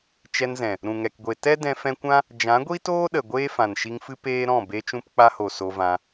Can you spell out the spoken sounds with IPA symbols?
t͡ʃ ɛ˧ n z ɛ̃˨ | ɾ ũ˨ ŋ ɛ˨ k ɡʷ e˨ t ɛ˦ d ɛ̃˧ f ɛ̃˧ kʷ ã˦ | d͡ʒ ã˨˦ ɡʷ i˦ t oː˦ ɗ ə˨ ɡʷ eː˦ f ã˨ n ʃ i˧ ŋ f ɨ˦ p eː˦ ɾ ɔ̃˦˨ b e˧ t͡ʃ ũ˧ p k͡p a˧ h o˨ s o˧ v ã˧

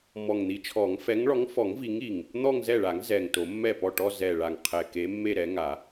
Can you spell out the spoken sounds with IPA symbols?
m ɔ˨˩ ŋ n̪ i˨˦ t͡ʃʰ ɔ˨˩˦ ŋ f ɛ˨˦ ŋ ɭ ɔ˨˦ ŋ f ɔ˨˩˦ ŋ v i˨˦ ŋ i˨˩ ŋ | n̪ ɔ˥˧ ŋ z ɛ˥˩ ɭ a˨˩˦ ŋ z ɛ˨˩ ŋ t o˨˩˦ mː ɛ˥˩ p ɔ˥˩ ʈ ɔ˥˧ z ɛ˨˩ ɭ a˨˩ ŋ qʰ ɛ˨˩ k e˨˦ mː e˥˧ ɾ ɛ˨˦ ŋ a˨˩˦

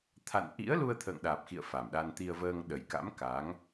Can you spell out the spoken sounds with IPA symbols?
t̪ʰ a̰˧˨ n ʔ ḭ˧˥ ə̯ l u˧ ə̯ t̪ʰ ə̰ː˧˨ ŋ ɗ aː˨˩ p̚ x ḭ˧˨ ə̯ f a˨˩ m ɗ a˧ n t̪ i˧ ə̯ v əː˧ ŋ ɗ ə˨˩ j k a̰˧˥ m k a˨˦ ŋ

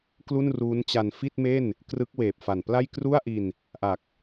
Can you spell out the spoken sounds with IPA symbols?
k l u˥˩ n r uː˦˥ n t͡ɕ a˧ n f i˥˩ t̚ m e˥˩ n | k r ɯ˦˥ k̚ w eː˨˩ p̚ f a˨˩ n p l a˥˩ j k r u˥˩ a̯ ʔ i˧ n | ʔ a˨˩ k̚

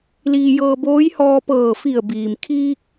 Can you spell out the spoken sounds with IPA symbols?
l iː˧ j ɤː˧ b oː˧˥ j h ɔː˧ p ɤː˧˩ f i˧˩ ə̯ b iː˩ m kʰ iː˧ k̚

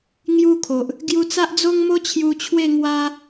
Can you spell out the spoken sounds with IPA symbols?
ŋ j u˦ kʰ o˨ ʔ | ɡ j u˧ t͡s a˦ ʔ d͡z o˦ ŋ m o˦ t͡ɕʰ j u˧ t͡ɕʰ w e˥˧ ŋ w a˦

